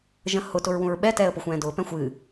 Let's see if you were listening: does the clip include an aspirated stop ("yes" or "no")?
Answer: no